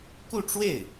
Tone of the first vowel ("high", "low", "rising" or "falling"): falling